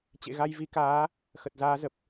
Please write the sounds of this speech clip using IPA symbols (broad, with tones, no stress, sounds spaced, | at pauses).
t͡ɕ ḛ˧˨ ɣ a˧ j v i˨˦ k aː˨˦ | x ə˨˩ t̚ z aː˨˦ z ə˨˩ p̚